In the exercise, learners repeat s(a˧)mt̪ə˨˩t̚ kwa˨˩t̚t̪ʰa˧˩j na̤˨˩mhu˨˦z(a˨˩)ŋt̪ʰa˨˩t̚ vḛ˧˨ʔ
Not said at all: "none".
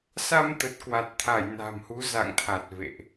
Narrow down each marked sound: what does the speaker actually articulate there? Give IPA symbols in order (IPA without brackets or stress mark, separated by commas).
a˧, a̰˧˨